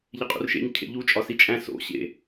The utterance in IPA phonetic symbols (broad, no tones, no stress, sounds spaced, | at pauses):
ʎ e qʼ ṵ r ʃ ḛ ɲ cʰ ḛ ʎ u t͡ʃʼ ɒ s i t͡ʃʼ æ̃ s o̰ ɕ ḛ